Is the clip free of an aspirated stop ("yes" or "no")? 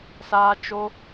yes